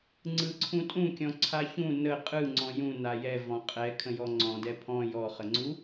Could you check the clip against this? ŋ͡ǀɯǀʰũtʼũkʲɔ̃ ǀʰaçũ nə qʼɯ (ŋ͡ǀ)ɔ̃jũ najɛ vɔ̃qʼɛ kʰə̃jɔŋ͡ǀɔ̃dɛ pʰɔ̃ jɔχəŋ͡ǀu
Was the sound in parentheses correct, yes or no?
yes